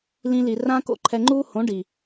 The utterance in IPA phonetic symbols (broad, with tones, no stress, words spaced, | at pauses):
lĩ˧li˨rã˦ko̰˦ ǃʰɛ˧ŋ͡ǃuː˦hõ˨˦ɖi˨